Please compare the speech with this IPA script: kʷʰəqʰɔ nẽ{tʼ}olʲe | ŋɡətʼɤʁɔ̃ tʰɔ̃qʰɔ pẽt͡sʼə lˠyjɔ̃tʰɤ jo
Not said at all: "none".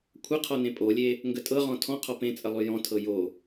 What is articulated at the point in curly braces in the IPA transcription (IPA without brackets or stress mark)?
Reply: pʼ